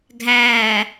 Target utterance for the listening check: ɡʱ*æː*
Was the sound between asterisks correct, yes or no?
yes